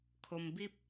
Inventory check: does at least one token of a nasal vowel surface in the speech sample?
no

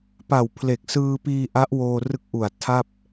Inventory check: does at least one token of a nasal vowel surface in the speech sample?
no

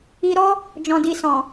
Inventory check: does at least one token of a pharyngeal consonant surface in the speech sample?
no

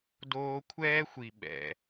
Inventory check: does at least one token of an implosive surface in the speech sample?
yes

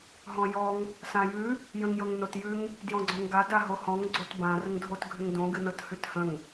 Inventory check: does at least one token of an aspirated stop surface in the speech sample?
no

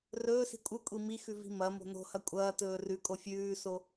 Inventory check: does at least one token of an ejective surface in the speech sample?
yes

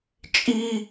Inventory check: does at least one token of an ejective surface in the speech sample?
yes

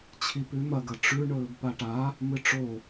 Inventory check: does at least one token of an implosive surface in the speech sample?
no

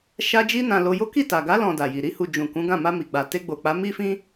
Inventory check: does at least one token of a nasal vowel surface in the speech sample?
yes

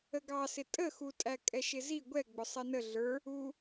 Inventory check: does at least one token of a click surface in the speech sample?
no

